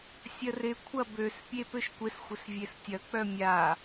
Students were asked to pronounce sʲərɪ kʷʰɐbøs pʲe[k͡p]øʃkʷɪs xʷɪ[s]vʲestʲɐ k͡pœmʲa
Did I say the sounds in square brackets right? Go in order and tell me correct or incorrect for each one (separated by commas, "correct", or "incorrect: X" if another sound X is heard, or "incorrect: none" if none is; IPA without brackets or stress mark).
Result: incorrect: p, correct